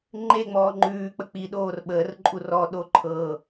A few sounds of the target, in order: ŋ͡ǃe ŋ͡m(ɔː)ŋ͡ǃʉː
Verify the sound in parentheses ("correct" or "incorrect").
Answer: correct